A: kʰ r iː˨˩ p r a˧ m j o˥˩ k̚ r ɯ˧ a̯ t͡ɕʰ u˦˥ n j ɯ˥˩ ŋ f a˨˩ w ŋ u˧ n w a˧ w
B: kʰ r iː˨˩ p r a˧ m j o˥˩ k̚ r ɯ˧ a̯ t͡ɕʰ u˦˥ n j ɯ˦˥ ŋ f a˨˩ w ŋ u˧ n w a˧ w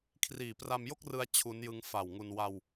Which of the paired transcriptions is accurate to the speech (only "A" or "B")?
B